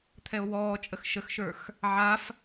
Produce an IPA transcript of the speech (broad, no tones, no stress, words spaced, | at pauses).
t̪ʰɛo̯wɔːt͡ʃʼəx ʃəxʃə˞x | ʕaf